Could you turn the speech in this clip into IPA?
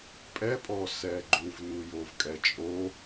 pʼ ɛ pʼ ɔ s ɛ ɡ͡ǃ u v n u j o v kʼ ɛ t͡ʃʼ o

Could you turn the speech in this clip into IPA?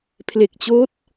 pʰ l e˨˩ k̚ t͡ɕ oː˦˥ t̚

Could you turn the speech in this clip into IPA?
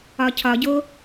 ɒ cʰ ɒ ɟ o

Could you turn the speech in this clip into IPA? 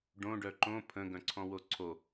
ɖ õ ɖ œ ǃ õ pʰ ə̃ ɡ œ̃ ǀʰ ɔ̃ w o ǀʰ o

